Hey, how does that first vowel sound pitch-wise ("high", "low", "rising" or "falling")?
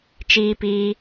high